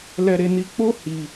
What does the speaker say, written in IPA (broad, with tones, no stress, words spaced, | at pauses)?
lɛ˦ɾe˦ni˦ k͡po˦ hi˧